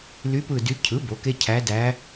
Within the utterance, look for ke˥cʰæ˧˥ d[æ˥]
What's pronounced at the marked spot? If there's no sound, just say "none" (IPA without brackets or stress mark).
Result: æ˧˥